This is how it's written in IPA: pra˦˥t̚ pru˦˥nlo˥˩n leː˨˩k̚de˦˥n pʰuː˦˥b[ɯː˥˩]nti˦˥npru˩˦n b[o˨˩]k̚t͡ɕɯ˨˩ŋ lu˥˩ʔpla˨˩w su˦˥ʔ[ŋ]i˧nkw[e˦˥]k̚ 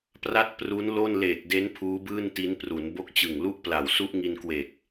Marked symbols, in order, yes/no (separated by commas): yes, no, yes, no